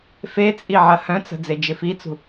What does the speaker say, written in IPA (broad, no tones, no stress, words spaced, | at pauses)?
fet͡sʼi ʕɐhœ̃t͡sə̤ d͡zed͡ʒɪfit͡sṳ